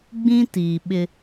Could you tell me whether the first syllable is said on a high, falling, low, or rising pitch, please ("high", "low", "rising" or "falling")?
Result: high